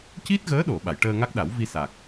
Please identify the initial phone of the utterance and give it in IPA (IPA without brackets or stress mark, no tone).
c